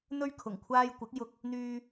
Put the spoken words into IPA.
n̪ ɵ˥ ɥ kʰ ʊ˨˩ ŋ kʷʰ aː˧ j kʷ ɪ˨˥ k̚ j ʊ˧ k̚ | n̪ yː˧

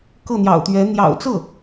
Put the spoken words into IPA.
k ɤ˥˩ n̪ j ɑ̰˨˩ ʊ̯ t̪ ɥ ɛ˧˥ n̪ j ɑ̰˨˩ ʊ̯ t͡s ɤ˥˩

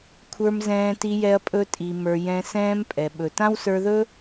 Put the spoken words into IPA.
kʷʰ ə˞˧ m z ɛ̃ː˧ t i˧ j ɛ˧ ɐ̯ pʼ ɵ˧ tʼ i˨ m ə˞˨ j ɛ̃˧ s ɛ̃ː˦ m pʼ ɛ˨ ɓ ɵ˨ t ã˦ w s ə˞˧ ð ɵ˦

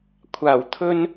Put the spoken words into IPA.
kʷʰ aː˨˩ w t̪ʰ ɵ˧ n

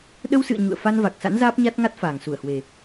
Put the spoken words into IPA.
ɗ ə˧ w s ɨ̰˧˨ ə̯ ɲ ṵ˧˨ ə̯ f a˧ n v a˨˩ k̚ s a̰˧˥ n z aː˦˥ p̚ ɲ a˦˥ t̚ ŋ a˦˥ t̚ f aː˨˩ ŋ s u˧˩ ə̯ h w e˨˩

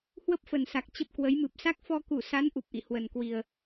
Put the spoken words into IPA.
h w ə˦˥ p̚ f ə˨˩ n s a˨˩ k̚ t͡ɕ ə˦˥ p̚ k w ə˨˦ j m ɨ˨˩ p̚ s a˦˥ k̚ f ɔ˧ k u˧˩ s a˨˦ n ʔ u˨˩ p̚ ʔ ḭ˧˨ h w ə˨˩ n k w i˨˩ ə̯

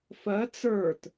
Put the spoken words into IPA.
f ɜ t͡s ə˞ t

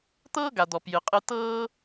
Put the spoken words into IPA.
t̪ ɤː˦ ɡ a˨ d̪ ɔ˨ p j ɨ˨ qʼ ɨ˧ t ɤː˦

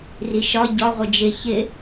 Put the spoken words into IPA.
r i ʃ ɒ ɟ ɒ ʁʷ ɪ d͡ʒ ɪ ç ɪ

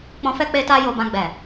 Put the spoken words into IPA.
k͡p ɔ̃˨ f ɛ˧ k͡p e˧ t a˧ j o˨ b ã˨ ɡ͡b ɛ˨

